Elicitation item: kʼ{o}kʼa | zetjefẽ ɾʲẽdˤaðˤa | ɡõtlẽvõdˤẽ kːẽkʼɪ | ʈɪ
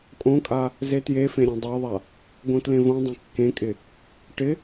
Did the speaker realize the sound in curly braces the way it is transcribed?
no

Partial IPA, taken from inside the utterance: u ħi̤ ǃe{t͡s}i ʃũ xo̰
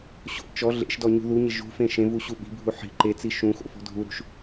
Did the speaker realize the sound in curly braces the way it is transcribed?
yes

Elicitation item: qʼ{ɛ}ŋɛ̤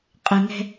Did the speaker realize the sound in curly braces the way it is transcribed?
no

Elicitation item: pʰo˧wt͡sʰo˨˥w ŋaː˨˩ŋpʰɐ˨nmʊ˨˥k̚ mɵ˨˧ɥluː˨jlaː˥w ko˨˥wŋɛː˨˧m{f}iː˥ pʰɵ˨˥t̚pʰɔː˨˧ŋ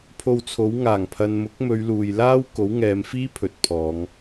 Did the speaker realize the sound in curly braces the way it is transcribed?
yes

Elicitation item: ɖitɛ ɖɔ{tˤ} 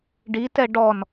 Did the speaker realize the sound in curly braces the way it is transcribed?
no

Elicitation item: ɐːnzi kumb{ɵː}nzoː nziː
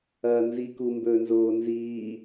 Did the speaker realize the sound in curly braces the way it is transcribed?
yes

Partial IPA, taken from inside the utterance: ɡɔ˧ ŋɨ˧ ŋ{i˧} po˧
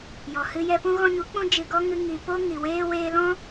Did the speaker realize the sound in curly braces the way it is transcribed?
no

